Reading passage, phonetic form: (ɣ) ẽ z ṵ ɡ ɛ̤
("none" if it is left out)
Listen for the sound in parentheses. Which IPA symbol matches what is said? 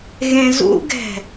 ɣ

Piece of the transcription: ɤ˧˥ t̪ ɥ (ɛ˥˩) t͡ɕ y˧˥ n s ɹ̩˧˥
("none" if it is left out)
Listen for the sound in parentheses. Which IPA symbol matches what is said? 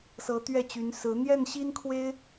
ɛ˥˩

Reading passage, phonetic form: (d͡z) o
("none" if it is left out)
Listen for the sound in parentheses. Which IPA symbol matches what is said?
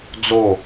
d͡z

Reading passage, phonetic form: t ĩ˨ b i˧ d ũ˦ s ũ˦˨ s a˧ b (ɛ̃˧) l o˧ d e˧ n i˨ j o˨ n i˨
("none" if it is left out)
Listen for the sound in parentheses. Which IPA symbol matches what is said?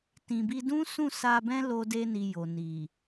ɛ̃˦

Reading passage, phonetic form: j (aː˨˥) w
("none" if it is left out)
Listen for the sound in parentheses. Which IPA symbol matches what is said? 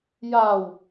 aː˨˩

